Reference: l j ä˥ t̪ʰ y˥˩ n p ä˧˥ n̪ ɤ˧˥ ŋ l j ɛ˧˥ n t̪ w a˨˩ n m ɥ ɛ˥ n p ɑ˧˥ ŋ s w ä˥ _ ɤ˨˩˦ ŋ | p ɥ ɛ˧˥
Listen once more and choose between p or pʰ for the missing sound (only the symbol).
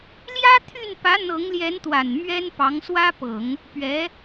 p